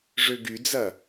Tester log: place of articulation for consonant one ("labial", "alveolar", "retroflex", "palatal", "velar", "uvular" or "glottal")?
retroflex